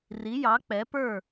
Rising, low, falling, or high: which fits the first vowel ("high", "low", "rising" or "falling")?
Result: rising